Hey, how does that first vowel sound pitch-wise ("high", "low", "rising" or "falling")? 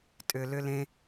low